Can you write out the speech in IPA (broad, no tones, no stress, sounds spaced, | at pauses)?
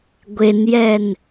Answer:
ɡʷ e n j ɛ n